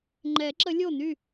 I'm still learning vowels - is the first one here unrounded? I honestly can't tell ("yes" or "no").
yes